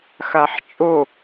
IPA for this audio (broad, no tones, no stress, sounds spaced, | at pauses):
x a ħ t͡ʃʼ o